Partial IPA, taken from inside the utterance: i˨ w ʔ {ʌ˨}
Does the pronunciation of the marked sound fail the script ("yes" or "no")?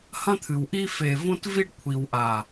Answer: yes